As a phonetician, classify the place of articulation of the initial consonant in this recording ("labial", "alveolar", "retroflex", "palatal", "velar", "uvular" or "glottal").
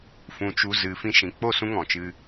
labial